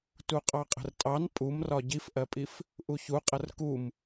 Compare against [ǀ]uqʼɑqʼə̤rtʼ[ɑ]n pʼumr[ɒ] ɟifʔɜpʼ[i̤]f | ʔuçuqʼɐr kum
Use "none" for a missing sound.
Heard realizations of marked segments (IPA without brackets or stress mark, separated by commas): t, ɑ, ɒ, i